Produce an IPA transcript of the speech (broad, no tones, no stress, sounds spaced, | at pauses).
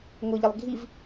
ŋ ʊ ʎ ə lˠ ɡʱ i v